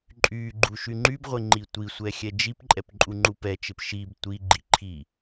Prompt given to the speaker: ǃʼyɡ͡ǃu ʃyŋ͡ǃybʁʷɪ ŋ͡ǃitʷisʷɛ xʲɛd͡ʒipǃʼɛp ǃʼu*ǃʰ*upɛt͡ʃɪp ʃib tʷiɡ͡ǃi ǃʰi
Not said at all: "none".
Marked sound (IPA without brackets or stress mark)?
ŋ͡ǃ